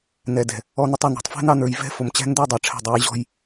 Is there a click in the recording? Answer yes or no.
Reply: no